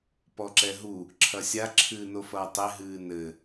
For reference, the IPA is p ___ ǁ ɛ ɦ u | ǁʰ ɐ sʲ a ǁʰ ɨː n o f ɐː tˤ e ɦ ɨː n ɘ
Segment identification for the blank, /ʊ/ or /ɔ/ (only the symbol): ɔ